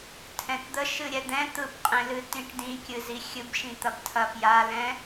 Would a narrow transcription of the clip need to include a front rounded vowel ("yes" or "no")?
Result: no